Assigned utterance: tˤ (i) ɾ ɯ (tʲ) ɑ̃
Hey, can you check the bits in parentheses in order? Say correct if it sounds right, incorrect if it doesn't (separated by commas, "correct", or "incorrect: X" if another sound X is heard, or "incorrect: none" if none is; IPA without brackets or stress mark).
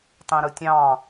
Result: incorrect: ĩ, correct